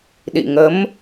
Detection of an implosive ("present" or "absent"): present